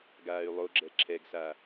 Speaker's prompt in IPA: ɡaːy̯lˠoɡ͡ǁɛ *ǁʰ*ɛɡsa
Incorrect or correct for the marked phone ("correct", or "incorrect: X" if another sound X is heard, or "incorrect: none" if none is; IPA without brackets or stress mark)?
correct